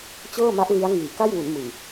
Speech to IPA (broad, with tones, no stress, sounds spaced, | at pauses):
t͡ɕ ɤː˥˩ m a˦˥ ʔ l i˦˥ a̯ ŋ iː˨˩ k a˥˩ j w u˩˦ n m ɯ˨˩ ŋ